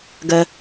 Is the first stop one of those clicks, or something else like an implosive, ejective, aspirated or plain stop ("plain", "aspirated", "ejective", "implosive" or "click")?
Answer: plain